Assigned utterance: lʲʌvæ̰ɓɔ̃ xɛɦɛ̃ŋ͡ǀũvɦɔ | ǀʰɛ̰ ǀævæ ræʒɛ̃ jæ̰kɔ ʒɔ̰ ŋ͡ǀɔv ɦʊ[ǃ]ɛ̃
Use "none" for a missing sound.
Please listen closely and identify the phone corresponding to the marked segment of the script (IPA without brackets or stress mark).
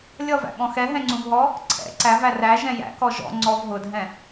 dʱ